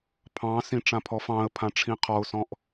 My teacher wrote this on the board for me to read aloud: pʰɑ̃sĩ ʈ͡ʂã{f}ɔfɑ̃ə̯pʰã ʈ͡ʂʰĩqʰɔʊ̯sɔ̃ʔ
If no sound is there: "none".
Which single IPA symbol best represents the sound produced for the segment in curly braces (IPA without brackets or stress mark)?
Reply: pʰ